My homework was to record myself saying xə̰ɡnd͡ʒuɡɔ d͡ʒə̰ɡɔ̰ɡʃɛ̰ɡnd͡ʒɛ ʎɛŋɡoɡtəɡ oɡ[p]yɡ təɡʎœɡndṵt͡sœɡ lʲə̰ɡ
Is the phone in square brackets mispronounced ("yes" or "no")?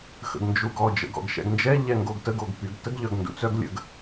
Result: no